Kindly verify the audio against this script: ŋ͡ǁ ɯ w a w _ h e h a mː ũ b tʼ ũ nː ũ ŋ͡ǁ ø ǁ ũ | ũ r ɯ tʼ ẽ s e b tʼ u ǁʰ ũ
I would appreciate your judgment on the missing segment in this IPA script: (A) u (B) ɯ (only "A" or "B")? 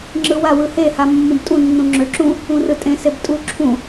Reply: B